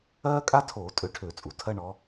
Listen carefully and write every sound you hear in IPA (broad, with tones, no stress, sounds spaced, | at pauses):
ɜː˥ kʼ a˥ tʰ oː˧˩˧ tʼ ø˨˥ ʈʰ ø˧˩˧ t͡sʼ u˩ tʰ ɜ˥ ɳ ɔ˨˥